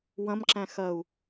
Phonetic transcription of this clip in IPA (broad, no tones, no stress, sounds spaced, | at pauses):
w ɐ̃ m ǁ æ̃ x ɐ u̯